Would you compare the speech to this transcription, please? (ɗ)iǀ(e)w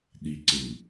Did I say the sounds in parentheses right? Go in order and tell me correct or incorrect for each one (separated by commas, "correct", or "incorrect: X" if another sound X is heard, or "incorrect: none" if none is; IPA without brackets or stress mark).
correct, correct